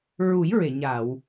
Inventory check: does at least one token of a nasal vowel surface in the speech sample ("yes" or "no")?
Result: no